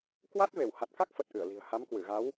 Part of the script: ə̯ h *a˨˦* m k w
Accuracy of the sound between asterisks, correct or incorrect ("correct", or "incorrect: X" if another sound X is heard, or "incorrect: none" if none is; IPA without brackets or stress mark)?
correct